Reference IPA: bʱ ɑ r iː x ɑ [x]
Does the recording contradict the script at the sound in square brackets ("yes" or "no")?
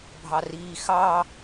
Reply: yes